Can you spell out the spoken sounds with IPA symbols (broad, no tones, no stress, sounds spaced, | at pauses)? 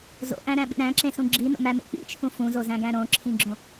z o̰ ʔ æ̃ ɾ æ̃ ɓ ḭ ɾ æ̃ ǁ ẽ s ũ ɡ͡ǁ i n o̰ m æ m ḛ k͡p ḭ t͡ʃʰ ũ f ũ z o z æ̃ ɡ æ̃ ɾ õ ǁʰ ĩ ɡ͡ǁ õ